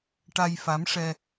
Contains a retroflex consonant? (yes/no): yes